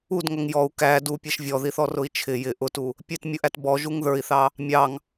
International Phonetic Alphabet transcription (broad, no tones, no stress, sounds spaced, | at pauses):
u d ŋ ʌ ŋ j ɔ u̯ k æ d u pʲ ɛ ʃ vʲ ɔ ð i θ ɔ r ʊ i̯ t͡ʃʰ ɪ j ɪ ʔ ʊ t u | pʲ ɛ t mʲ ʊ ʔ æ t b ɔ ʒ u ŋ ð ə˞ i̯ θ ɑ | mʲ ɑ ŋ